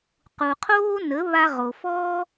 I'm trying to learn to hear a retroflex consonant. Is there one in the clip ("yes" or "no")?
no